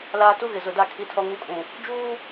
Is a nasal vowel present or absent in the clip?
present